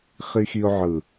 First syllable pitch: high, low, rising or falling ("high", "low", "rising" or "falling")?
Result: low